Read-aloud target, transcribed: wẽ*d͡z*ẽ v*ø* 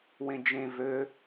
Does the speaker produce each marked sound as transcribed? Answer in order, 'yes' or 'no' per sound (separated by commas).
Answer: no, yes